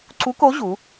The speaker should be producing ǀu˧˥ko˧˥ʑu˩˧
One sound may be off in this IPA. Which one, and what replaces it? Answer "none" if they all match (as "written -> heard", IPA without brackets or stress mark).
none